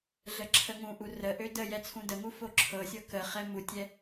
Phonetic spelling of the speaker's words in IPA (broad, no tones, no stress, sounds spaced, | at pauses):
ɮ ə ǁʰ ə ŋ ũ ʔ u r ə ʔ ø d ə j ɛ t͡sʰ ũ d ə ŋ u f o ǁʰ ɤ sʲ ɤ k ə χ ɛ m u tʲ ɛ